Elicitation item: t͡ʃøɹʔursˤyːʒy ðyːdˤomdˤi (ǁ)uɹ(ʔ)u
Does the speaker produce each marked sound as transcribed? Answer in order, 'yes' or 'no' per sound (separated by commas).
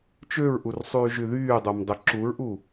yes, yes